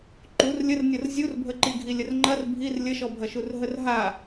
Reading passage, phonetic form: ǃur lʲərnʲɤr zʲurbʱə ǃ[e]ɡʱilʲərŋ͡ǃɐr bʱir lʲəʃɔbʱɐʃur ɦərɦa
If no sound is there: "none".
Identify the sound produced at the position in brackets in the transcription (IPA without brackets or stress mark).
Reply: i